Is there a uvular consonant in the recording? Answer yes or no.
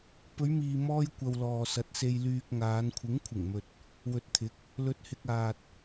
no